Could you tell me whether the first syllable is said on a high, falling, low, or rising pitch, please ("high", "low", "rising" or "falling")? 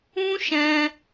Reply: high